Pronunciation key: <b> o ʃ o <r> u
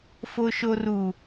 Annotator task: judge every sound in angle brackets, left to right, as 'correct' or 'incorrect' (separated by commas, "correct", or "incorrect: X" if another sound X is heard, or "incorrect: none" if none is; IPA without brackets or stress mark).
incorrect: f, correct